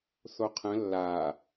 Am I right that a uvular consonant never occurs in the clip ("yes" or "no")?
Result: no